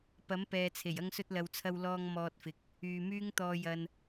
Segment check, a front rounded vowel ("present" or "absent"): present